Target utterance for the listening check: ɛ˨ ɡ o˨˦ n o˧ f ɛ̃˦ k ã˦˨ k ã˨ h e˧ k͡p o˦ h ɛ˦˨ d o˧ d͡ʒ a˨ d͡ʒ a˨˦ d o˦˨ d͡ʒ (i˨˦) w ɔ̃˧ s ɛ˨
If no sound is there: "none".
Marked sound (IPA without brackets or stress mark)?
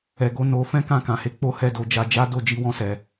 i˨˦